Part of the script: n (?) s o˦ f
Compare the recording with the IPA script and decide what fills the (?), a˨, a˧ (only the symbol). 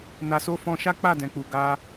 a˧